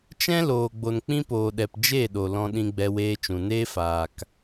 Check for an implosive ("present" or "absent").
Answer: present